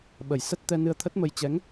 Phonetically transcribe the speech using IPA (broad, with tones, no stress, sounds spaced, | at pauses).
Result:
ɓ ə˨˩ j s ə˦˥ t̚ t̪ ɛ˧ n ɨ˧ ə̯ t̪ʰ ə˦˥ t̚ m ə˧ j t͡ɕ ɛ˨˦ ŋ